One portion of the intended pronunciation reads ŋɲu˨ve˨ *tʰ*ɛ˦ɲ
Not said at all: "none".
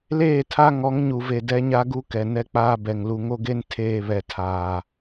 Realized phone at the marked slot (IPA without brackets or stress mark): d